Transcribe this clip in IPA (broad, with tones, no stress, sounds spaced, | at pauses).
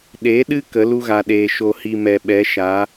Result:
ɗ e˨˦ ɗ ɨ˦ k ə˨˦ l u˦ ɣ a˨ ɗ eː˨ ʃ o˧ h i˧ m ɛ˨ ɓ ɛ˨˦ ʃ a˨˦